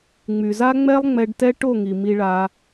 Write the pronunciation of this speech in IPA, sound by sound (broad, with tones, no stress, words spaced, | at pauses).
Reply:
ŋ͡my˨za˦ŋ͡mɛ˦lˠ ŋ͡mɛ˧ɖtɛ˦ ʈo˦˨ŋi˨ mi˧ɭa˧